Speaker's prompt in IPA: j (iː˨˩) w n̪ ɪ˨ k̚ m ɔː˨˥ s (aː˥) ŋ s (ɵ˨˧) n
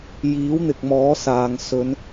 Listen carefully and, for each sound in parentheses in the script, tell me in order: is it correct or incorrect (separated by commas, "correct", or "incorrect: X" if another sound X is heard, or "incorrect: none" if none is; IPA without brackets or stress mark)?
incorrect: iː˨˥, incorrect: aː˨, correct